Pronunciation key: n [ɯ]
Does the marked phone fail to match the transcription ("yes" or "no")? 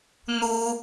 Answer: yes